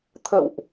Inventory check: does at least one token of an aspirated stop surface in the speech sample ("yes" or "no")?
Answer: yes